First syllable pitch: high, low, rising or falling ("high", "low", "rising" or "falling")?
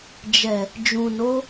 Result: low